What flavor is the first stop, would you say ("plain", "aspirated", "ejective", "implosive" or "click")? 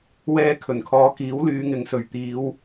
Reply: aspirated